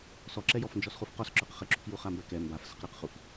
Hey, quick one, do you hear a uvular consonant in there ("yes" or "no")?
yes